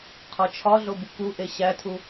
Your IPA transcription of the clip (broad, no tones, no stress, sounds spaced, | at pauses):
qʰ ɒ t͡ʃʰ ɒ ɮ o b u k u ʔ e ɕ æ tʰ u